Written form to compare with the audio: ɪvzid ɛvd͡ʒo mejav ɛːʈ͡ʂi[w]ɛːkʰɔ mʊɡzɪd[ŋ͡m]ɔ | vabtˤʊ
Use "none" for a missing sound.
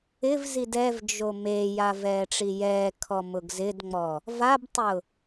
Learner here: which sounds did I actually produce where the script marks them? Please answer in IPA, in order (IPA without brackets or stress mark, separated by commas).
j, ŋ͡m